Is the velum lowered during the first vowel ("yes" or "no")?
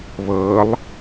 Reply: no